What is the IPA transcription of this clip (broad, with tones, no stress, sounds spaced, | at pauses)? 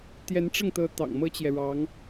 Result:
t̪ j ɛ˧˥ n ʈ͡ʂ ɤ˥˩ ŋ t̪ ɤ˧˥ t̪ ɑ̰˨˩ ŋ m ɤ˥ t͡ɕ j ɛ˨ ɻ ɑ˧˥ ŋ